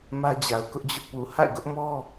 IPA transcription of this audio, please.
m ä˦ d͡ʑ a˨ ʊ̯ k ʊ˦ ʔ d͡ʑ ʊ˦ ʔ p u˨ h a̰˦˨ ɪ̯ ɡ ʊ˦ ʔ m ɔ˦

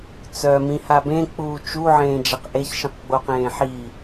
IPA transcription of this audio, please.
t͡s œ m ĩ h a b ẽ k͡p uː t͡ʃ u ʕ ẽː d͡ʒ a q ʔ e ç ʃ ĩ q ɡ͡b o q ẽː ħ iː

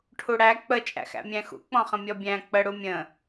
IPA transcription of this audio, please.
ʈʰ u ɽ æ k͡p ə t͡ʃʼ æ̰ x æ̰ mʲ æ̃ x ṵ k͡p ɔ̃ χ ə̃ mʲ ɔ bʲ æ̃ k͡p ə ɽ u mʲ ə̃

